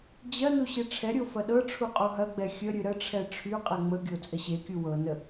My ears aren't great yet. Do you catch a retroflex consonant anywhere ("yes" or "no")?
yes